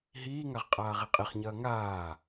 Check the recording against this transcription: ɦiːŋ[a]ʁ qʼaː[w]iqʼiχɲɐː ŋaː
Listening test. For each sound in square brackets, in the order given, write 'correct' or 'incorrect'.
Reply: correct, incorrect: ʁ

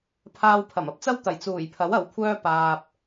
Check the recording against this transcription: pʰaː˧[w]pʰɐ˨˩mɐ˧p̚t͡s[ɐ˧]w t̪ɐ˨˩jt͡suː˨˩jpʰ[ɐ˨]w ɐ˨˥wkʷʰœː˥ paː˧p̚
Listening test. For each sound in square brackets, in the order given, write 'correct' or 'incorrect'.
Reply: correct, incorrect: ɐ˥, incorrect: ɐ˨˥

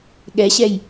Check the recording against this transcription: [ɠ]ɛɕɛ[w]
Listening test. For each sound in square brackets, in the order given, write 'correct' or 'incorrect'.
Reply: correct, incorrect: j

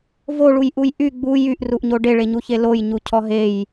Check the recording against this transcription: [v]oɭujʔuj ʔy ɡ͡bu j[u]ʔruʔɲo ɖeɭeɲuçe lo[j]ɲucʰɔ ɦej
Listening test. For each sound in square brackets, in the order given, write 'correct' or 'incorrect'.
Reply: correct, incorrect: y, correct

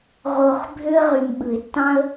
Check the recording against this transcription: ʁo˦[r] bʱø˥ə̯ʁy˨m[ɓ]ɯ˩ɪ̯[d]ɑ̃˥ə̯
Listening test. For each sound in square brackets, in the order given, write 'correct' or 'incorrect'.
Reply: incorrect: χ, correct, incorrect: tː

